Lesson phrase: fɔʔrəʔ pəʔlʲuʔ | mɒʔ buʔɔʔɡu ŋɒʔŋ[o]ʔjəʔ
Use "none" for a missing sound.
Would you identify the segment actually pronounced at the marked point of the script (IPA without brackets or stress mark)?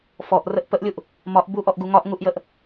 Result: u